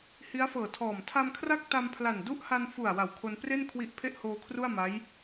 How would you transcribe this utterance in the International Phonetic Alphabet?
hi˦˥a̯fɤː˨˩tʰɔː˨˩m tʰa˧mkʰra˥˩k̚ ta˧mpʰla˨˩n du˦˥ʔha˧n fu˨˩a̯ wa˨˩wkʰo˧n pre˥˩n kʰwi˦˥ʔpʰe˥˩ʔ hoː˧kʰru˥˩a̯ma˦˥j

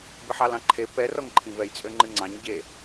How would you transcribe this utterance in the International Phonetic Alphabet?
bɨħɑlɑ̃ǃʰe pɛ rɔŋǃʰĩvɛj t͡sʼøŋ͡ǃɨŋ͡ǀɑ̃ɲ ɟe

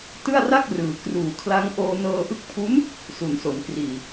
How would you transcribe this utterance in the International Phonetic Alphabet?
tɯ˥˩a̯ra˥˩k̚rɯː˩˦ kruː˨˩kʰla˦˥ŋ ʔoː˧nɤː˧ʔɯ˦˥k̚ pʰu˦˥n | su˩˦nso˩˦nkriː˨˩

